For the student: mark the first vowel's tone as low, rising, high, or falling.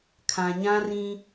low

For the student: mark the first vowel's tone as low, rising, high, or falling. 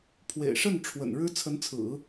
low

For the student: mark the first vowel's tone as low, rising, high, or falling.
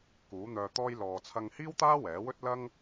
rising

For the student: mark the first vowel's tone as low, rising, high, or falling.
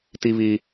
high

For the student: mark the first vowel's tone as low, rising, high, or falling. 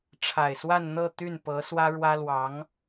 low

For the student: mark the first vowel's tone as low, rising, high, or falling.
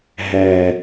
low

